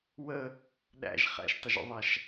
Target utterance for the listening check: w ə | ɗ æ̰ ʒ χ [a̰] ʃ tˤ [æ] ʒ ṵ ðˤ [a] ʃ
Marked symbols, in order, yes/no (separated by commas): no, no, yes